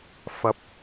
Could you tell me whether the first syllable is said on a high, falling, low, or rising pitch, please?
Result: rising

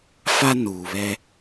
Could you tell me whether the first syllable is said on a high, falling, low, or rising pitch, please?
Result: high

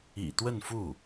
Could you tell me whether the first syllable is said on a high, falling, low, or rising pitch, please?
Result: low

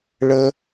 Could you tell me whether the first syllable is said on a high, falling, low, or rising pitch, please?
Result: low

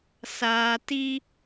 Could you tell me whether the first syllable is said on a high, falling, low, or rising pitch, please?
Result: low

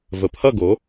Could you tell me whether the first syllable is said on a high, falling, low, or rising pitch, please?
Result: low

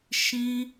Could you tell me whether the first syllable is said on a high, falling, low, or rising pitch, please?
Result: high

